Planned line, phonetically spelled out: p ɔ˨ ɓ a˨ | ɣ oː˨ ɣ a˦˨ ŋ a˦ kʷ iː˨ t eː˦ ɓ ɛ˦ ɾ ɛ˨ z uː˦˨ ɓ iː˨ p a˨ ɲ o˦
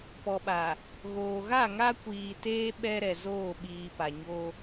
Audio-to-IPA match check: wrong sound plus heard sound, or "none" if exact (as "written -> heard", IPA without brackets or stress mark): uː˦˨ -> oː˦˨